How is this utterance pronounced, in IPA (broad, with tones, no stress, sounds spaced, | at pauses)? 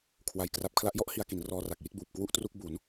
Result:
kʰ w a˧ j k r a˦˥ p̚ kʰ l a˦˥ ʔ j ɔ˦˥ ʔ h i˧ a̯ k i˩˦ n r ɔː˧ r a˨˩ k̚ j i˥˩ t̚ b uː˨˩ p̚ k w u˥˩ ʔ t r u˥˩ k̚ b u˩˦ n